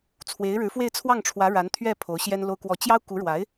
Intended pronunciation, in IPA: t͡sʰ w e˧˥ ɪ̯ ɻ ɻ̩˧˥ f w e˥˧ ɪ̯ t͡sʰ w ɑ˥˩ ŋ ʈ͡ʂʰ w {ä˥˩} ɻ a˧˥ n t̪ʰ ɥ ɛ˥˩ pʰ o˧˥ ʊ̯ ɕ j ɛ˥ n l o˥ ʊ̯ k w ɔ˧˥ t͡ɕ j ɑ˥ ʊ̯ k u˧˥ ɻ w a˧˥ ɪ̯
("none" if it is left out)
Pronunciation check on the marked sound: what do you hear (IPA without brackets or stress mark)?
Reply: ä˧˥